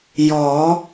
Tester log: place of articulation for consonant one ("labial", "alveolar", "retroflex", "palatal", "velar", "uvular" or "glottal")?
palatal